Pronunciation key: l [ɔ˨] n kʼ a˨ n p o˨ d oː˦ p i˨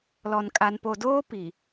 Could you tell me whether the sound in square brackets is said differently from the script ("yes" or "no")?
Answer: no